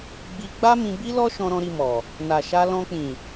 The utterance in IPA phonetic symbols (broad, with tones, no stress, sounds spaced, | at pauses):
ɡ͡b i˧ ɡ͡b a˦ m ĩ˧ b i˦ l ɔ˦ ʃ ɔ̃˧ ɾ ɔ̃˧ ɾ i˧ m ɔ˨ | n a˨ ʃ a˧ l ɔ̃˧ k͡p ĩ˨